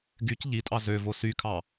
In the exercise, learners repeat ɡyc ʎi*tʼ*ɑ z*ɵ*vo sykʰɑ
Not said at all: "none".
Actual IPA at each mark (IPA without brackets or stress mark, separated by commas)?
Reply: tʼ, ø